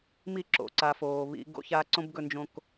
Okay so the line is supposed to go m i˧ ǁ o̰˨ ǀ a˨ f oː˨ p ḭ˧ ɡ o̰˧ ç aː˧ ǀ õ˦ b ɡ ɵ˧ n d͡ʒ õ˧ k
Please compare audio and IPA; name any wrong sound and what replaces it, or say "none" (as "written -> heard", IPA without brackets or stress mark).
p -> β